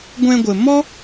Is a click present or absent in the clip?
absent